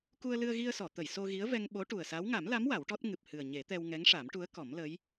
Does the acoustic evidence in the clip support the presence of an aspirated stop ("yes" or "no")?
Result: no